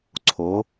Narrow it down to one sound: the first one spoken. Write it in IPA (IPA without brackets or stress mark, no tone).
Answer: ǀʰ